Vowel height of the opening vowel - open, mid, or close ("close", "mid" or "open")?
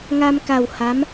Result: open